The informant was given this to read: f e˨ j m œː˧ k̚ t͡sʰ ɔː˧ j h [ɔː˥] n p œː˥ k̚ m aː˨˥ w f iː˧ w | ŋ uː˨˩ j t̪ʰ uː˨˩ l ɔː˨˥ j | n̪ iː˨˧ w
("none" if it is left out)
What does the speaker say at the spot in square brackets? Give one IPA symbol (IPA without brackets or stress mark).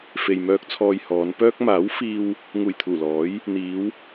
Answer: ɔː˨˧